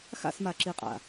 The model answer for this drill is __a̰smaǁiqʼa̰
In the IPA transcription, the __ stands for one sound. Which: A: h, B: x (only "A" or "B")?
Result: B